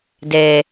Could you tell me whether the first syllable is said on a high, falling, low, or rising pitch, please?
low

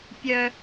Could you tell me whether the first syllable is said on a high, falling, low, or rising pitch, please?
high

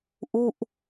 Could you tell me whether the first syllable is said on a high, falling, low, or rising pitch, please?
falling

